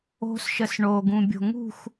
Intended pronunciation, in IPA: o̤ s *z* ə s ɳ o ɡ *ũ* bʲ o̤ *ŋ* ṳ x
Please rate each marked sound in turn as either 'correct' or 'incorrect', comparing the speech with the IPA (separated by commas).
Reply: incorrect, correct, correct